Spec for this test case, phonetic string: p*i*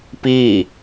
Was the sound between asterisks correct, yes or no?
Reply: no